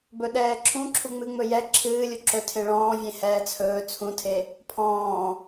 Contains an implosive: yes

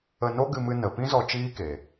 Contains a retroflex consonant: no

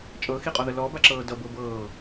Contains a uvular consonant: yes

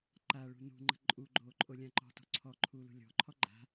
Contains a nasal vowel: yes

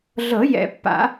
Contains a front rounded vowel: no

